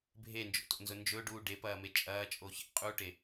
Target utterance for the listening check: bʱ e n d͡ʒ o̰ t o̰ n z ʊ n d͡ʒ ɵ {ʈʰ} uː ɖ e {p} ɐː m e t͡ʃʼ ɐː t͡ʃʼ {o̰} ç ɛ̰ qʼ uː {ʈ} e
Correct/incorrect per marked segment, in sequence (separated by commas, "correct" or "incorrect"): incorrect, correct, incorrect, correct